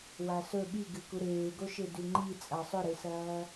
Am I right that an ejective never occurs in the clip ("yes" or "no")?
no